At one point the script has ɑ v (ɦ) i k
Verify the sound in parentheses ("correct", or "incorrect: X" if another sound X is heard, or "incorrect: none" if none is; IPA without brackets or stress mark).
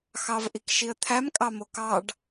incorrect: ʔ